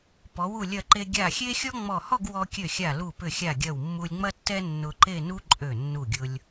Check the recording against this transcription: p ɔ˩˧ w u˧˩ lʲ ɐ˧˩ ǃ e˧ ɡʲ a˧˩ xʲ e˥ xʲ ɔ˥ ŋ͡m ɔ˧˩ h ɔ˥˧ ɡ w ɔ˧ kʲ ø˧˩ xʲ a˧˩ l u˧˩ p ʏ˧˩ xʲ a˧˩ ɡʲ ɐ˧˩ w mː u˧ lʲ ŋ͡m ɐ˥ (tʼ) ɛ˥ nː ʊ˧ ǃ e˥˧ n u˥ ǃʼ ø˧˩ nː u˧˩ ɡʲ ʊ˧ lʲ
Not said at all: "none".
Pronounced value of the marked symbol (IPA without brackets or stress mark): tː